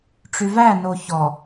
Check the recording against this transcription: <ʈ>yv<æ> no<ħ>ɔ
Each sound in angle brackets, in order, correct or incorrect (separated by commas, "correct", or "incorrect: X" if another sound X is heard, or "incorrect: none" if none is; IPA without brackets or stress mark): incorrect: ʈ͡ʂ, correct, incorrect: ç